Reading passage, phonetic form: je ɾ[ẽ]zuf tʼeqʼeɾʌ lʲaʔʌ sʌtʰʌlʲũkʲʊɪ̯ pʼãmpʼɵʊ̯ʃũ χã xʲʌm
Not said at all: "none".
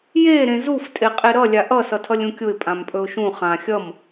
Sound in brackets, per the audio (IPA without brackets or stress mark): ẽ